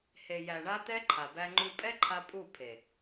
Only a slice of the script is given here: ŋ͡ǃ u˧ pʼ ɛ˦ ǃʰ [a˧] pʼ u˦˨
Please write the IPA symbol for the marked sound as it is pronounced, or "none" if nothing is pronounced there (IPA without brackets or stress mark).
a˧